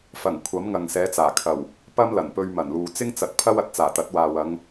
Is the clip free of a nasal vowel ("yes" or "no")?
yes